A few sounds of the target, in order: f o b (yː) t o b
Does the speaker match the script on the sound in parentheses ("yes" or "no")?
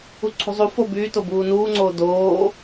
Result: yes